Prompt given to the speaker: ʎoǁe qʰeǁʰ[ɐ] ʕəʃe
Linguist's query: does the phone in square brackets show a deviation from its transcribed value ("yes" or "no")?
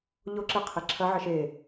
no